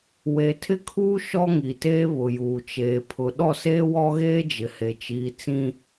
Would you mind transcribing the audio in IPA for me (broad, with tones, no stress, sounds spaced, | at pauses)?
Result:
w e˨ tʰ ɪ˦ kʰ uː˦ ʃ ɔ˦ ŋ i˨ t eː˦ β ʊ˨ j uː˨ t͡ʃ eː˨ pʰ ʊ˨ ɗ ɔ˦˨ s eː˦ w ɔ˦ ɣ eː˦ d͡ʒ ɪ˨ h e˨ t͡ʃ iː˨ t͡s ĩ˦